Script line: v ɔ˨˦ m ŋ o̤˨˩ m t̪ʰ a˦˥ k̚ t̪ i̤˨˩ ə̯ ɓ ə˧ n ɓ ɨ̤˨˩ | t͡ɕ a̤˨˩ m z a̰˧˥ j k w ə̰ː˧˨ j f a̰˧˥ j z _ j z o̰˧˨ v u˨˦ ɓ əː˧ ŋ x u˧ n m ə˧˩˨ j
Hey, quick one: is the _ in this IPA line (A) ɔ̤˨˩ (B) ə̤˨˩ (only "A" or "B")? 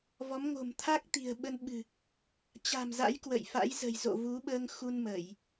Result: B